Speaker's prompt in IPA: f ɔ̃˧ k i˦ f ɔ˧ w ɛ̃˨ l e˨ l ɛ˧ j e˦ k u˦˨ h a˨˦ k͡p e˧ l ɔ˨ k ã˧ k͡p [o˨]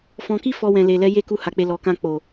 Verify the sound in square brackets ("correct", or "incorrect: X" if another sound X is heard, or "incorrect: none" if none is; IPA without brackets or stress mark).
correct